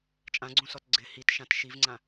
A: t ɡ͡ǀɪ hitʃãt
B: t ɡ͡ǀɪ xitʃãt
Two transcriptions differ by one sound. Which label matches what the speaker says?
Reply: A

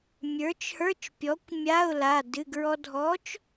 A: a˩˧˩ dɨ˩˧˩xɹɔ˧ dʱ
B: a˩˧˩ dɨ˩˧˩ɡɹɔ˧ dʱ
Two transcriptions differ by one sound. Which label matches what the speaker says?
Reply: B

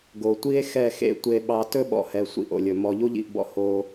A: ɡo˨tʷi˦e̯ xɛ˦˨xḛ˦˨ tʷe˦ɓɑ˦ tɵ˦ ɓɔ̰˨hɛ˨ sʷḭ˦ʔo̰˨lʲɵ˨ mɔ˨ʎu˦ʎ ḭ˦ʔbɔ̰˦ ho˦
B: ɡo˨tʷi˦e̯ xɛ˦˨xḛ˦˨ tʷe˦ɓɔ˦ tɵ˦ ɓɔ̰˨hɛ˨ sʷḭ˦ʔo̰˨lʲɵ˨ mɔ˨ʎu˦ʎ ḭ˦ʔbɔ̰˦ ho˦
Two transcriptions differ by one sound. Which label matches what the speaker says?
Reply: A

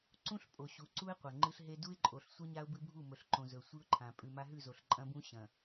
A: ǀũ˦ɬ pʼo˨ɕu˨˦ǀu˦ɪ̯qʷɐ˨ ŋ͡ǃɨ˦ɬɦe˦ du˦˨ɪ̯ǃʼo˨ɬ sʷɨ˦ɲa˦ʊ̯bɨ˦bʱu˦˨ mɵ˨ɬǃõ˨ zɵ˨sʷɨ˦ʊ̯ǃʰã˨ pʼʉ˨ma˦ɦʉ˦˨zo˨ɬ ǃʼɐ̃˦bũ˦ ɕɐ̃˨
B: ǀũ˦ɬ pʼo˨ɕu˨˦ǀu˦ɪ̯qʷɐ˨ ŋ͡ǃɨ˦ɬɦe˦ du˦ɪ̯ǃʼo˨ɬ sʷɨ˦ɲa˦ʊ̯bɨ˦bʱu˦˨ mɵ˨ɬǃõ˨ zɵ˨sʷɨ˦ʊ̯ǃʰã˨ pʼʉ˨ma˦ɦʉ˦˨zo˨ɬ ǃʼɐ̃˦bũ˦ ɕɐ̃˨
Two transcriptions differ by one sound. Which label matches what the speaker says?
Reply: B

